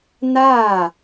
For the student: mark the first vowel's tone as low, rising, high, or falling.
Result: falling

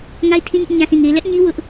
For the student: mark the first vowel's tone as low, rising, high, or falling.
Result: high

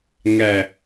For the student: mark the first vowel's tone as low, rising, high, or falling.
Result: low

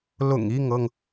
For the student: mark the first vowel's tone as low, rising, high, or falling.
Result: low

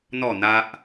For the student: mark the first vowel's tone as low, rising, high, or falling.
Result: falling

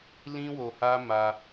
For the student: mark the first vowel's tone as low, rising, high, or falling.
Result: high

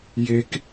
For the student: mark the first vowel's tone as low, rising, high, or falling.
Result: low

